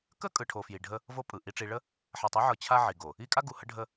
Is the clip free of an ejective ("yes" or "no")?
no